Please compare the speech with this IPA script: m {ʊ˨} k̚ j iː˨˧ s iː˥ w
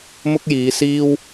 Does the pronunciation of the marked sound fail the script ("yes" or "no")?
yes